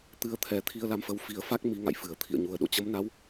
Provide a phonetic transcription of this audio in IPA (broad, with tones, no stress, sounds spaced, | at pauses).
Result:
t̪ ɨ˧ ə̯ t̪ʰ ɛ˨˩ t̪ʰ i˧ ə̯ l a˧ m f ə˨˦ w f i˨˩ ə̯ f a˦˥ k̚ m i˨˦ ŋ a̰˧˨ j f ɨ˧˩ ə̯ t̪ʰ ḭ˧˨ ə̯ ɲ u˨˩ ə̯ ɗ o̰˧˨ t͡ɕ ə˨˦ m n a˨˦ w